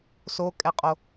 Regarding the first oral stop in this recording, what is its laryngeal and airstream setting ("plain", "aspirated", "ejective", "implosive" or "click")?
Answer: ejective